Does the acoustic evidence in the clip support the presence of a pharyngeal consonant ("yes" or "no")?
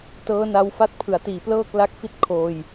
no